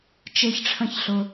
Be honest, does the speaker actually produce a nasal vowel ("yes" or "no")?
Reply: yes